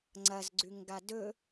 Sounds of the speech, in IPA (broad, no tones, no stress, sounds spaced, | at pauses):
ŋ͡ǀ ɐ z ɡ͡ǀ ʉ ŋ ɡ a d ɵ